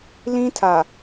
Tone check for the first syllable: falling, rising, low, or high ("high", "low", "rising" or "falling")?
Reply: high